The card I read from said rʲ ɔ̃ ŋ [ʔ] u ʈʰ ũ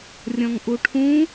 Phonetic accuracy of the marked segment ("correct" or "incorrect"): correct